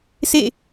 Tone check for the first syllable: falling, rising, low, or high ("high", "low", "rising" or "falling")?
falling